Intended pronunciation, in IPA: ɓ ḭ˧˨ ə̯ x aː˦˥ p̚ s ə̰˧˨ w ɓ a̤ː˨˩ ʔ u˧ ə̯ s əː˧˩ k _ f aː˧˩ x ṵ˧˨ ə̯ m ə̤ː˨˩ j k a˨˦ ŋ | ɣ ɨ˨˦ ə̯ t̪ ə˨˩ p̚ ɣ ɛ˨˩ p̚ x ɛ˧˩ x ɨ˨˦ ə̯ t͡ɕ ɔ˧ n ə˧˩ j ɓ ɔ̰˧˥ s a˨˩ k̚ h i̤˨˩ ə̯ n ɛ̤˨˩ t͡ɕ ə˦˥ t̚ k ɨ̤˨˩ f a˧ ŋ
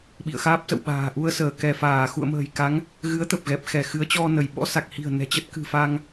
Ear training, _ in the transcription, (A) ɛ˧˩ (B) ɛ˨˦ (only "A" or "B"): A